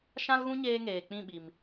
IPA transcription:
ʃ ã˦ l ɣ ũ˦ ɲ eː˧ ŋ eː˨ k͡p ĩ˦˨ ɓ i˨ m

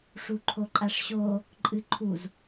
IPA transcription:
ʂ u ǃʰ o ǃʼ a ʂ ɕ o | ǃʼ ɨ ǃʰ u z

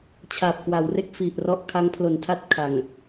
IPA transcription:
t͡ɕʰ a˨˩ p̚ k w a˩˦ w r e˥˩ k̚ f i˨˩ ʔ r ɔ˦˥ ʔ kʰ a˦˥ ŋ pʰ l o˨˩ n tʰ a˥˩ t̚ kʰ a˨˩ ŋ

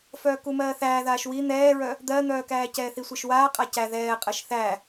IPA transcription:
f œː k u m ɜː θ æː ð aː ʃ w i n̪ ɛː ɹ œ | d̪ ɜ n̪ œː k æː c ɛː θ i sʷ ɛ ʃ w aː qʼ a c æ ð ɛː qʼ ɜ ʃ θ æ

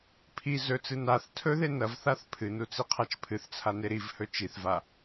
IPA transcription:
pʰ i z ɵ t͡s ɨ n a θ tʰ ɵ ð e n ɐ v θ a θ pʰ ɨ n u t͡s i qʰ a t͡ʃ pʰ ɨ θ t͡sʰ a n e ɾ i v h ɵ t͡ʃ i θ v a

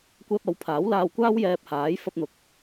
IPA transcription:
kʷ ɛː˧ p̚ ɐ˨˥ w pʰ aː˨˥ w l aː˧ w kʷ aː˥ w j ɛː˧ p̚ h aː˨˥ j f ɐ˧ p̚ n̪ ʊ˨ k̚

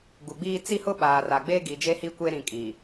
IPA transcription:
ɡ u˨ ɡ͡b iː˦ t͡s i˦ h ʊ˦ ɓ aː˨ r a˨ ɡ͡b eː˦ ɡ i˨ d͡ʒ e˦ h i˦ kʷ e˦ ɾ ĩ˨ kʼ i˨

